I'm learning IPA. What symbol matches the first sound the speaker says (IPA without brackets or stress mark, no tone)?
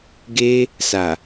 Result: ɡ